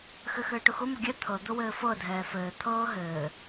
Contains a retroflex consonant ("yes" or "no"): yes